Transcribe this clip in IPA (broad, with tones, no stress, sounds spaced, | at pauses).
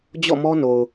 d͡ʑ ɔ̰˦˨ m ɔ˦ n o˨ ʊ̯